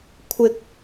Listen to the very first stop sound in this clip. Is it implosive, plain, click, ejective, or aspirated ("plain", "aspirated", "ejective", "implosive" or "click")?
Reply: aspirated